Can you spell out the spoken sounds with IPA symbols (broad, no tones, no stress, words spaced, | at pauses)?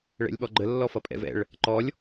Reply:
ɭɛ̰lʲɓɔɡ͡ǃə lːɔfʌpʼɛ̰vɛ̰ɭ | ǃɔlʲ